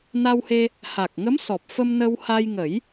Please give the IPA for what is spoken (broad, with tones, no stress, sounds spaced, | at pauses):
n a˧ w h e˧ | h a˨˩ k̚ ŋ ə˧˥ m s ɔ˨˩ p̚ f ə˧ m n ə˧ w h a˧ j ŋ ə˨˩˦ j